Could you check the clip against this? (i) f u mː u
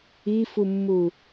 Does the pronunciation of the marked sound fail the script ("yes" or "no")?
no